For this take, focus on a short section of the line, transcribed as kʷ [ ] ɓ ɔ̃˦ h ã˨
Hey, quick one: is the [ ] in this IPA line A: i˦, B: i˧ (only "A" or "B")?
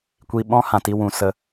B